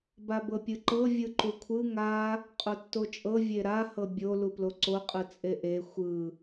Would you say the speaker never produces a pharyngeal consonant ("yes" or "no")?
yes